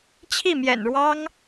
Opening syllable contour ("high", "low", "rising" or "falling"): falling